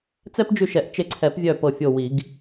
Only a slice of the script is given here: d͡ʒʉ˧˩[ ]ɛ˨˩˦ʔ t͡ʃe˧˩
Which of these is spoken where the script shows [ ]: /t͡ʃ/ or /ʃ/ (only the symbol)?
ʃ